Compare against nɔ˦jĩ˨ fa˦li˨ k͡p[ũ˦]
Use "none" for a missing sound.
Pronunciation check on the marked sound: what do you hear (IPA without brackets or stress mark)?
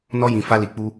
u˦